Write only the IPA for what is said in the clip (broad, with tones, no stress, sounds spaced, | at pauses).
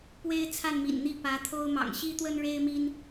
p w e˦ ɪ̯ t͡sʰ a˥˨ n m ḭ˨˩ n n̪ i˥˨ p ä˨˦ t̪ʰ o˦ ʊ̯ m ɑ̰˨˩ ŋ ɕ i˦ t̪ w ə˦ n ɻ e˦ ɪ̯ m i˦ n